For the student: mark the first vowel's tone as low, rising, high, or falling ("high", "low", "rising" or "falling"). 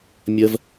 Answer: high